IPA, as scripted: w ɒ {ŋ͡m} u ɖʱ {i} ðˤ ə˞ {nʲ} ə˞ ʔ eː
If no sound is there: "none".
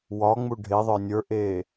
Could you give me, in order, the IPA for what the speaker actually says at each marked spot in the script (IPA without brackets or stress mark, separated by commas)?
ŋ͡m, e, nʲ